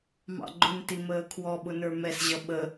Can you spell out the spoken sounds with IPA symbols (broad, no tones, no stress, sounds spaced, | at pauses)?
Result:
m ɑ̰ ɡ͡ǃ ʊ n t i m əː kʰ w ɔ ɓ ʊ n ə˞ m ɛ s ʑ ʌ ɓ ə